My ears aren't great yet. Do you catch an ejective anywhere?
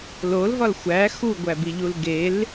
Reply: no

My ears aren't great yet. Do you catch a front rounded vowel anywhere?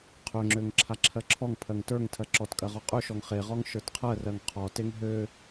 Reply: yes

